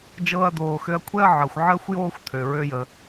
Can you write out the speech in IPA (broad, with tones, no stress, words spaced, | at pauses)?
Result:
d͡ʒɤː˧ɐ̯d̪oː˩xø˧ɐ̯kʷʰɛ˥ɐ̯ ʕɤ˩xʷʕəː˥xʷjoː˥xʷ t̪ʰø˩ɹø˧jə˩